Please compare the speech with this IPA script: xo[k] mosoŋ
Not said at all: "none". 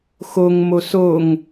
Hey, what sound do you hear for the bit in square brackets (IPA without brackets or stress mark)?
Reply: ŋ